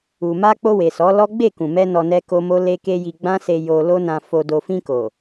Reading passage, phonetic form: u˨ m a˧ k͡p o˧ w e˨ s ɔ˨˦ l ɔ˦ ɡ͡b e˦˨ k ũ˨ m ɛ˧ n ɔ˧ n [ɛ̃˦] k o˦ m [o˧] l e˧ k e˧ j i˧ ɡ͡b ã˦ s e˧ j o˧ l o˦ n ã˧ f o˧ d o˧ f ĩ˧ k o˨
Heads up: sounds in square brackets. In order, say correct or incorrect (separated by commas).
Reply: incorrect, incorrect